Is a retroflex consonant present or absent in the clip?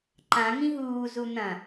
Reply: absent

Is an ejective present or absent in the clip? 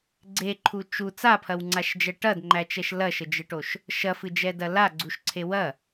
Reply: absent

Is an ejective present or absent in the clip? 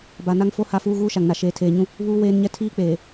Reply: absent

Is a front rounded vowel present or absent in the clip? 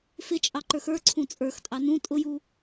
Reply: absent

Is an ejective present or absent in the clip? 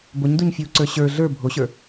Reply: absent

